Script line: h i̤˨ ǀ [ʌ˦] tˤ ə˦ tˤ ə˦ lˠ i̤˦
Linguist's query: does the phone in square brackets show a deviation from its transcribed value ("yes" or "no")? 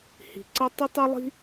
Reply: no